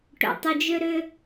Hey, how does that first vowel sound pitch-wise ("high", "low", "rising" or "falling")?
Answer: low